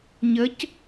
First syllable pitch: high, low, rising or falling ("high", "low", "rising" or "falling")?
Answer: rising